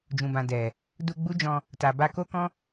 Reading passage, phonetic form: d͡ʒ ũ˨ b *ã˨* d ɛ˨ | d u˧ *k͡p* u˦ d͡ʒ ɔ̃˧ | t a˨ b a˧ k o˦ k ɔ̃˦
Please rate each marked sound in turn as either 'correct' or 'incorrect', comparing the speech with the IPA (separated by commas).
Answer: correct, incorrect